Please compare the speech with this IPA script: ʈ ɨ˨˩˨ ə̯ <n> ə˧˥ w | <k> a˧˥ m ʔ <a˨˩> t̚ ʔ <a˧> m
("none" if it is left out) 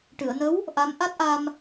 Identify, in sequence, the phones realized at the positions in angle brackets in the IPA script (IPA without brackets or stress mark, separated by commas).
n, ʔ, a˦˥, a˧